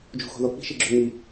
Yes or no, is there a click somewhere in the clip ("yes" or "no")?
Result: yes